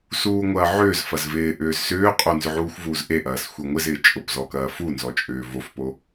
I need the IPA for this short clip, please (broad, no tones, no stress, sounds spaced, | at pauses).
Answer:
s uː ŋʷ ɐː ʕ ʏː z f ɐ z v ɪː ʔ ʏː z s ʏː qʼ o n z ʏ ʕ uː xʷ v uː z ʔ e ʔ ɐː s xʷ e ŋʷ ɪ z ɪː t͡ʃʼ ʊ p z ɔ k ɐː f u n z ɔ t͡ʃʼ ʏː v o f p o